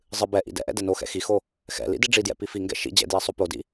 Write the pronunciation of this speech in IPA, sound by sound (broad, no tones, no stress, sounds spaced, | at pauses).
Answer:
zˤ ɨ b ɛ ʔ ḭ d ɛ̰ ʔ ɛ̰ d ɛ n o x ɛ̰ x i x o | x ɛ̰ l ḭ d i ɖ͡ʐ i d j ɛ̰ p i f i ŋ ɡ ɛ̰ ʃ ḭ d͡ʑ ɛ̰ d j ɛ sˤ o p o d ḭ